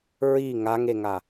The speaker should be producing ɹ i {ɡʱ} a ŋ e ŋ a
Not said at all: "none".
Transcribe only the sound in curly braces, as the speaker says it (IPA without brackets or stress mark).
ŋ